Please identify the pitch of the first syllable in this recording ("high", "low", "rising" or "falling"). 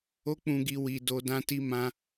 high